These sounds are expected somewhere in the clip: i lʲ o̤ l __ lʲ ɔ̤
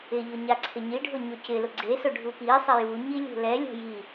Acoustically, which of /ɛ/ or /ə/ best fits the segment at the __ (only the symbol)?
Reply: ɛ